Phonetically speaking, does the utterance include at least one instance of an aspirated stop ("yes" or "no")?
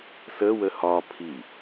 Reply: yes